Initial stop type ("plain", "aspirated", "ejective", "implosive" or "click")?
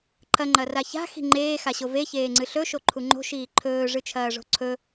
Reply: click